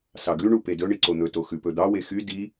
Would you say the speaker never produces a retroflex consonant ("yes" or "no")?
no